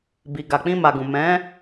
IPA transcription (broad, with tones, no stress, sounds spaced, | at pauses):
b i˨ ɡ a˨ k͡p ĩ˧ m a˨ ɡ ũ˨ m ɛ̃˨˦